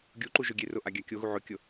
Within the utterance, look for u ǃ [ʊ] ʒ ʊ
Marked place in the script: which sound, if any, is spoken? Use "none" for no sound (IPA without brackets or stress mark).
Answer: u